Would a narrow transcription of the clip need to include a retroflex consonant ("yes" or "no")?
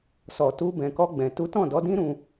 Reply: no